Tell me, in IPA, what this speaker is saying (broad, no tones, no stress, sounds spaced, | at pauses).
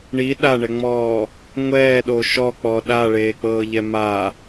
ɳ i ɗ a ɳ ɛ ŋ͡m ɔː | ŋʷ ɛː ɗ o ʃ ɔ k͡p ɔ ɗ a ɭ eː k͡p ɤː ʎ ɛ m a